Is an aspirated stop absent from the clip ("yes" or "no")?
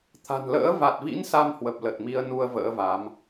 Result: no